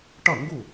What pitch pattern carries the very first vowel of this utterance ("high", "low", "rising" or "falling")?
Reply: falling